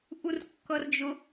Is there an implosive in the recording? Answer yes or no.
no